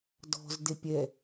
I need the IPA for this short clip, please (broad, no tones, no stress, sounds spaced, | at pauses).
d ɔ̤ z d e pʲ ɛ